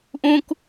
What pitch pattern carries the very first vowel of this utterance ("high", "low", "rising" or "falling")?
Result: high